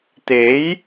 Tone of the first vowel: rising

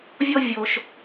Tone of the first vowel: high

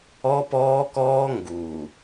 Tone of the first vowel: high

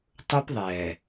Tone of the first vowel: high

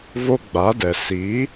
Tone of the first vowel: high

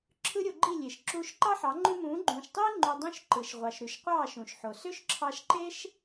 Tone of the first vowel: high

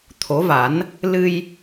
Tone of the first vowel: rising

